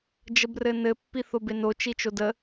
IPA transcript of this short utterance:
d͡ʒəbrɘnɘ pːiθobeno t͡ʃit͡ʃodə

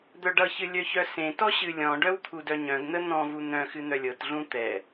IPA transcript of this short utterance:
d̪œɖʌçɨ lʲœçœsẽtɔ ɕɨlʲɔ̃ɖœw t̪ʰudœɲœ̃ɡn̪ə n̪ɔ̃vu n̪œ̃ xɨn̪œlʲɤtɮũ t̪ɛ

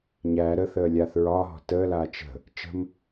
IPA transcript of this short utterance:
ɲæ ɾəθəː lʲaːθɹɒːɦɔ̤ təːlaː t͡ʃə̤ | t͡ʃə̤m

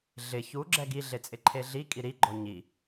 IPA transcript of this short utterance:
ɮɪ çu ɡ͡ǁɛɡiɮet͡sʼɪ ǃʰeɮikʼi ɾiɡ͡ǃɔ ɲi

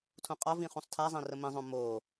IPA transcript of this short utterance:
tʰũqʼɒvĩ χũsˤtʰazˤĩ rəmĩzˤõ mo

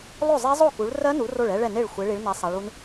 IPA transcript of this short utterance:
lˠo˥˨zˤe˦˥zˤo˥˨ku˨˦ɭ rɜ˦˥nu˨˦ ro˥˨ɭɛ˦˥ɭɛ˥˨ne˥˨ɭ xʷe˨˦ɭi˨˦ɭnɛ˨˦ sˤa˨˦ɭu˦˥n

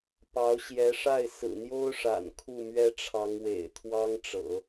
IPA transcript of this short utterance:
pɑ˧˥ʊ̯ɕjɛ˧˥ʂa˥˩ɪ̯ sɹ̩˨˩n̪jo˥ʊ̯ʂa̰˨˩n kʰu˥˩mɥɛ˥ʈ͡ʂʰɑ˧˥ŋwḛ˨˩ɪ̯ t̪ʰwɑ˥ŋʈ͡ʂɤ̰˨˩˦

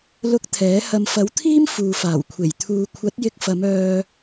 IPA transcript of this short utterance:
lʊ˧k̚ t̪ʰɛː˨˥hɐ˧m fɐ˨˥wt̪ʰiː˥m fuː˨faː˨˩wkʷʰe˨˩j t̪ʰuː˨kʷʰɐ˨˥t̚jɪ˧k̚fɐ˨˧m œː˧

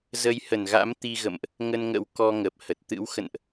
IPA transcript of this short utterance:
zə˨˦jhə˧˩nɣa̰˧˥m t̪i˧ɣə̰˧˨mʔ | ŋə˧nŋə̰˧˥w kɔ˧ŋə˨˩p̚hə˨˩t̚ t̪ɨ̰˧˥wxə̰˧˨nʔ

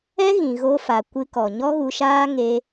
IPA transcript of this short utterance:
ɛ˦ɣĩ˨ɣo˧fa˨ kʷɨ˧kɔ˨ ɲɔ˦ɣu˧ʃaː˦ ŋe˧

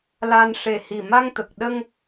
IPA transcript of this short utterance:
la˧n ʂe˨˩hi˨˩ ma˧ŋt̪ə˨˩k̚ ɗə˧ŋ

